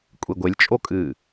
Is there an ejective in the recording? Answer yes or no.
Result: yes